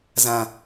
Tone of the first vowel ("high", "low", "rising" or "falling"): low